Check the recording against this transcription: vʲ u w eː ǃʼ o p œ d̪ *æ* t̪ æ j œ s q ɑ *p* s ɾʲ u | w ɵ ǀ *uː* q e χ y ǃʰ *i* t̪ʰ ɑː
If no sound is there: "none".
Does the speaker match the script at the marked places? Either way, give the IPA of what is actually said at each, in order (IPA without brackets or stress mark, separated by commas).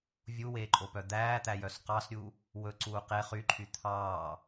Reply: æː, none, uː, y